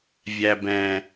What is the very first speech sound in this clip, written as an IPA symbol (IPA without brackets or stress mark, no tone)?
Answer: vʲ